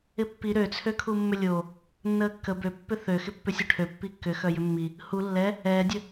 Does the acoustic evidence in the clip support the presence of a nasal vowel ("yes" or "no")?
no